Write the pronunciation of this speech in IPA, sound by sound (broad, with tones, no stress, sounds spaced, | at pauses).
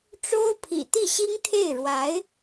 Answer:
ʈ͡ʂ o˥ ʊ̯ pʰ ḭ˨˩ t̪ i˥˩ ɕ i˥ ŋ t̪ʰ e˥˩ ɪ̯ ɻ w a˧˥ ɪ̯